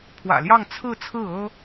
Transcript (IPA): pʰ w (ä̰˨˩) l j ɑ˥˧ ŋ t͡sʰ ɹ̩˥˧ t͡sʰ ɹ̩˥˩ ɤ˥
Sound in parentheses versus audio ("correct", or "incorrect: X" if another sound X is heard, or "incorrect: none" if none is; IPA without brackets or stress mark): correct